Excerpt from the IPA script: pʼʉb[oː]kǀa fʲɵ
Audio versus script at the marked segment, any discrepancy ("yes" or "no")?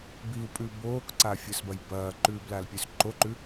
no